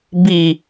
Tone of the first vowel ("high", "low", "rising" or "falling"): low